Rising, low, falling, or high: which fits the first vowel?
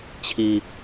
low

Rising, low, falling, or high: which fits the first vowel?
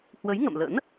rising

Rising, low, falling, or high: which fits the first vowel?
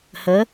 rising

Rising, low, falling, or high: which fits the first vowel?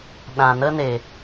low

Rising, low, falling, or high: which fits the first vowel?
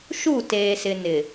falling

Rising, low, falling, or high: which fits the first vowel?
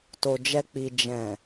low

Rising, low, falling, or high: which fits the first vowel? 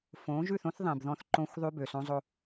rising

